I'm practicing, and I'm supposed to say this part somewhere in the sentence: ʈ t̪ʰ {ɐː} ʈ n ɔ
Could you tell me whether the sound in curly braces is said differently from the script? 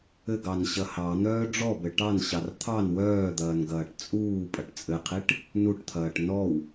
no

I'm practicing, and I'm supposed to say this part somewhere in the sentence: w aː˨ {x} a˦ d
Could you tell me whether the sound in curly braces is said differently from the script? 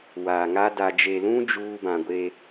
yes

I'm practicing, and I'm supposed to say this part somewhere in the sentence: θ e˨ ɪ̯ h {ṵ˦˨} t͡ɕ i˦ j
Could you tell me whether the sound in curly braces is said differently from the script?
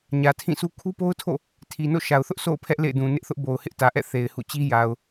no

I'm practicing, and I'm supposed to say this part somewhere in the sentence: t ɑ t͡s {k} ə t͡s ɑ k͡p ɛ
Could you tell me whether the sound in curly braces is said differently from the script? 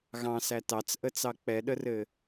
yes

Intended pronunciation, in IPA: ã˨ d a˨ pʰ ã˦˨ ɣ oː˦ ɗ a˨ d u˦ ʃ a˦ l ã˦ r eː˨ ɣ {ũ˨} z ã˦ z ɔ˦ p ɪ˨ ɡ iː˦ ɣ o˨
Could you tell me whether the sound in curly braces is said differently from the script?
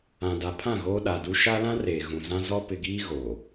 no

